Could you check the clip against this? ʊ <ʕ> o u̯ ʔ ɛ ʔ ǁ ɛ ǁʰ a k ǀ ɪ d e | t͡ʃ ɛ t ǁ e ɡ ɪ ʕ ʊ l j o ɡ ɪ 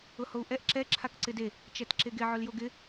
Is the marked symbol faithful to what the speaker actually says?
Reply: no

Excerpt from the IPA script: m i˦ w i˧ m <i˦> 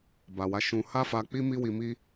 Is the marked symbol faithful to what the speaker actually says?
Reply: yes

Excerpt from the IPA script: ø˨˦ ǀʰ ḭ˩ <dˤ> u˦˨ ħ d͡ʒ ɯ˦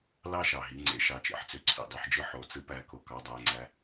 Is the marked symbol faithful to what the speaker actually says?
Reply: yes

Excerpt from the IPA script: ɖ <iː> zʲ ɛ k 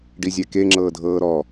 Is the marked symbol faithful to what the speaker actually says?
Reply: no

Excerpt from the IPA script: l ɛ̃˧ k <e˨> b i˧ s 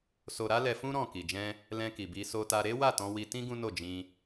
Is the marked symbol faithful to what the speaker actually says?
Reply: no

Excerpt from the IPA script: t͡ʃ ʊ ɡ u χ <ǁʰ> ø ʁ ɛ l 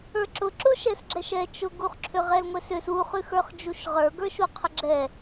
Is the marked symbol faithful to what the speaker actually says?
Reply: yes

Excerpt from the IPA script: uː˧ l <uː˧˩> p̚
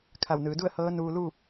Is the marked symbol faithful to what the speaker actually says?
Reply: no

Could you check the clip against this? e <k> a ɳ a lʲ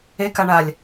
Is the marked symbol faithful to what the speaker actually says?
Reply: yes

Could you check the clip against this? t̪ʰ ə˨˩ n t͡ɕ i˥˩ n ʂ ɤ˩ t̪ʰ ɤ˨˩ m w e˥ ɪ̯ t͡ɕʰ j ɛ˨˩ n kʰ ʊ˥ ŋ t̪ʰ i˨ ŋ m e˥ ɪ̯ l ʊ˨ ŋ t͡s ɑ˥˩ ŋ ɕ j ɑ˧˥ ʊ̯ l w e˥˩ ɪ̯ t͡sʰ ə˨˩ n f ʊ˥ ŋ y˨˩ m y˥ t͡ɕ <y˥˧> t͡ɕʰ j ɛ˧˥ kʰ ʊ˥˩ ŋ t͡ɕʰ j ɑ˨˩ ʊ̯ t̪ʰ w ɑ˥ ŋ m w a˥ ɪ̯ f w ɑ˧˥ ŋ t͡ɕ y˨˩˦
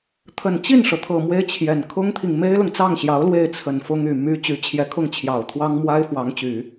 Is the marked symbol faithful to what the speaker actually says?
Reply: no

